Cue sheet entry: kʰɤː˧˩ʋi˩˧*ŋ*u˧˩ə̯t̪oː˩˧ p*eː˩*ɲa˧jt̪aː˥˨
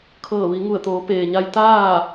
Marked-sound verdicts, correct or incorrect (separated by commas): correct, correct